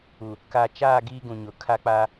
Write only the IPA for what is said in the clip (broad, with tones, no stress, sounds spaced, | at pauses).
u˨ | k a˨ t͡ʃ aː˦˨ ɡ iː˦ ɡ ũ˨ ɲ ʊ˨ kʰ a˦ k͡p aː˦